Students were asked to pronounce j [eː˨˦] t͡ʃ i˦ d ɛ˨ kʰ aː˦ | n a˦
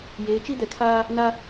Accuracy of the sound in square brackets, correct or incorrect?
correct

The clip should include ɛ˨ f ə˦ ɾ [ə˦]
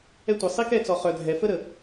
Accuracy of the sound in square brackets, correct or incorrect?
incorrect: ə˨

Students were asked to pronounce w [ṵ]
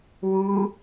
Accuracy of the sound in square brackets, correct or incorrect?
incorrect: u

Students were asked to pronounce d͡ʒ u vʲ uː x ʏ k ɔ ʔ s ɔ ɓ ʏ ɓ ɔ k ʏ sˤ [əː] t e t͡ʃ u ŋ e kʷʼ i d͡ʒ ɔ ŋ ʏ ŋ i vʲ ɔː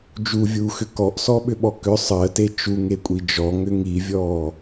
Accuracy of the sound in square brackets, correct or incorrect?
correct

